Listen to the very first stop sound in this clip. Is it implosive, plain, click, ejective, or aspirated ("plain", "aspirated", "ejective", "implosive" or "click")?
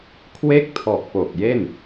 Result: aspirated